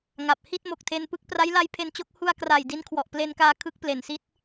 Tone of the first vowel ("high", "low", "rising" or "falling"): low